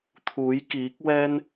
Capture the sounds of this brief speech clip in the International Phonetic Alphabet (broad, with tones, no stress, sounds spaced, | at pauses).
t̪ʰ uː˨˥ j k iː˨˥ k̚ w ɛː˥ n